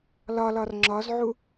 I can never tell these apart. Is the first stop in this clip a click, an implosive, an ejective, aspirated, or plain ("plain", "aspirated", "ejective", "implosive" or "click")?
click